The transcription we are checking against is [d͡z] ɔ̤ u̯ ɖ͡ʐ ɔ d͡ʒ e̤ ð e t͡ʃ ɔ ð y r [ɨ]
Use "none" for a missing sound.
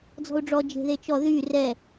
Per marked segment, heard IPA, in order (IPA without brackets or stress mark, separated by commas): d͡z, ɛ